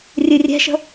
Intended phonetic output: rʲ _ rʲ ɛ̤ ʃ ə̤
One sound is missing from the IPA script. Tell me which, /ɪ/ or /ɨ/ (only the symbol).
ɨ